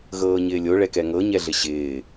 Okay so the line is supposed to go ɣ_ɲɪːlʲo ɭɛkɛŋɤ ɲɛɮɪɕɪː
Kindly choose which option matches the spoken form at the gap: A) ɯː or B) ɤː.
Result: B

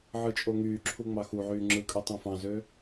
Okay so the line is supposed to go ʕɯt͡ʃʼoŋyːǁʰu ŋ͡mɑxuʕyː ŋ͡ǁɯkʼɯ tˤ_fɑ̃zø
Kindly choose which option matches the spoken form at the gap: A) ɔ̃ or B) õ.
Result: B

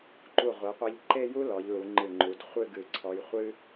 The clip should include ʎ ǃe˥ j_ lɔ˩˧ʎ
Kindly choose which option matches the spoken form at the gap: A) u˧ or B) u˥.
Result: B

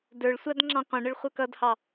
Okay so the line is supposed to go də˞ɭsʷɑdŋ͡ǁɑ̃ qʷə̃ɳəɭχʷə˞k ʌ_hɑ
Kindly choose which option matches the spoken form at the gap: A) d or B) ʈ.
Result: A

